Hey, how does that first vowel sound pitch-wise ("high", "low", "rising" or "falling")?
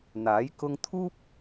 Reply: rising